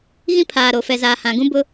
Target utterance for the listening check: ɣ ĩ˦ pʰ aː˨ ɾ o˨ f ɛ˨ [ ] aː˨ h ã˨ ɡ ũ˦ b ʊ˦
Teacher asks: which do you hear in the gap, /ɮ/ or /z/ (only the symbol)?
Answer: z